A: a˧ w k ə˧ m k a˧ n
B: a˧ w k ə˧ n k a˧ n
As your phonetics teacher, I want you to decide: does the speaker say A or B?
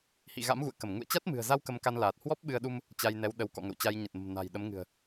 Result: A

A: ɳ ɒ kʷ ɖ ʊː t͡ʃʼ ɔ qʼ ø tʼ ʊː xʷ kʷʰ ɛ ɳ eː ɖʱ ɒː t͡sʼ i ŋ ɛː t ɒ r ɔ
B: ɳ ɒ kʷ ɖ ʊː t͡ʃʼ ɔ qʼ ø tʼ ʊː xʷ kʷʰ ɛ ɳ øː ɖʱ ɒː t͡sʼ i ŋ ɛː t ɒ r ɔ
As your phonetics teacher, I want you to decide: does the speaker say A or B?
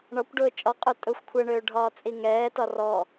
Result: B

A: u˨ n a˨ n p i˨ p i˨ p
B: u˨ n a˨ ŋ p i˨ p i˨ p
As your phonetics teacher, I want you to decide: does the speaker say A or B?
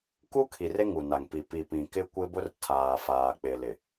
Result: B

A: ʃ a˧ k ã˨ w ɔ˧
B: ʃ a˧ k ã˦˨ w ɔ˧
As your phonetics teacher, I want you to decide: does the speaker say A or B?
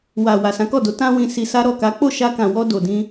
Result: A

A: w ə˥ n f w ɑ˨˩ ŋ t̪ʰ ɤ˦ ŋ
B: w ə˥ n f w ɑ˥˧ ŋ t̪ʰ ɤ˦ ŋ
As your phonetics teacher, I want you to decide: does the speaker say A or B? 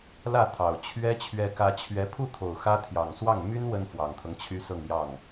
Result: A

